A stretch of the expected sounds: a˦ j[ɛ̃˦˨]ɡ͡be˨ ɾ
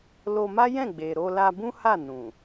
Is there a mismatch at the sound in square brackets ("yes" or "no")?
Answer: no